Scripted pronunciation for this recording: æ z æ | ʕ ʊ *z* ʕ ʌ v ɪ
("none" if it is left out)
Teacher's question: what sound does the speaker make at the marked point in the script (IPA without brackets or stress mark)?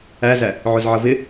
z